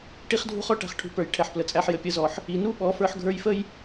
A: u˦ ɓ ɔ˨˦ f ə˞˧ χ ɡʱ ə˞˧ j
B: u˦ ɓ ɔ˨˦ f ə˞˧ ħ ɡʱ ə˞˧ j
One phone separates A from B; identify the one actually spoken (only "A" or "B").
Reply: B